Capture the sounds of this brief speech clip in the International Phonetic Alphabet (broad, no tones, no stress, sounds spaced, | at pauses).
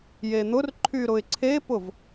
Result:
j e n̪ ʊ r ǃʰ y ɾ ʊ ɪ̯ ǀʰ e p ʊ v